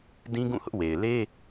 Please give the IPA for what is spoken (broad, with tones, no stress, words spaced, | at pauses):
dĩ˦ɡũ˦˨ hʊ˦ʔ we˨ɪ̯ le˦